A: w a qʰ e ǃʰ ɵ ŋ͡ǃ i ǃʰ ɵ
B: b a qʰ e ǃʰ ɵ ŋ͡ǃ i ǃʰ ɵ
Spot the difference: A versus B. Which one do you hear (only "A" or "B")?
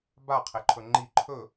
B